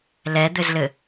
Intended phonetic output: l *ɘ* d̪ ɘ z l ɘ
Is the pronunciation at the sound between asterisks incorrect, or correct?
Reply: incorrect